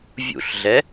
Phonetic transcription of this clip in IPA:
vʲṵɬɮɛ

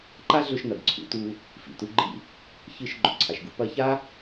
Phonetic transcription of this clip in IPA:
ǃa˥ɮɵ˧ʃnɐ˩ɡ ǀʰṵ˧tu˧ | fḭ˩tu˧ɡ͡ǃḭ˧ | çɨ˧ʃ ɡ͡ǃɵ˩ǀʰa˩ʃɡṵ˧ pɐ˧ça˥

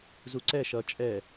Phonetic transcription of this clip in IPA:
zuǀɛ ʃʌ t͡ʃʼɛ

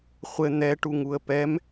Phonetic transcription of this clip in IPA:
χʷɘ n̪ɛʈuŋ uə̯pɛm

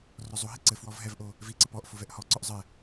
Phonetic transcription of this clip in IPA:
rɔzˤoɦi ǀɘ fwɔvɦɛvʔo | viǀɘ pɔʔ fovɛʔhɔǀɔʔ zˤɘ

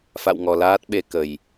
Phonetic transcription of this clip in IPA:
fa̰˧˨wŋɔ˨˩laː˦˥t̚ɓe˧ kə˨˩j

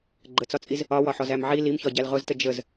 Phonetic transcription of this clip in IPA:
ɡ͡ǃət͡sɒt͡sʼiz | ɒwɒħɔz æmʕi limçɒ ɟælʁʊztə d͡ʒəz

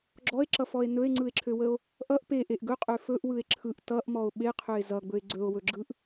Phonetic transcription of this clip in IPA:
ɡ͡ǁɔe̯ǁʌfɔe̯ nɵe̯ŋ͡ǀɯe̯ǁʰøwəo̯ | ʔʌʔ peʔeʔ ɡɵqʼø fɵʔwɯe̯ ǁʰɯʔ tʌʔmɔo̯ ɓeqʰøe̯ zʌɡ͡bɵe̯ ɡ͡ǀɵo̯wɵɡ͡ǁɯʔ

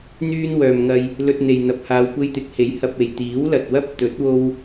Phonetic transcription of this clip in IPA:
n̪yː˧nwœː˨m ŋɐ˧j | lɵ˧t̚n̪e˨jn̪ɐ˨p̚haː˨˧w kʷe˧jt̪ɪ˨˥k̚he˨˥j hɐ˨p̚e˨˩j t̪iː˨˥wlɐ˨t̚ wɐ˥p̚t̪ɵ˨˥t̚ wo˥w

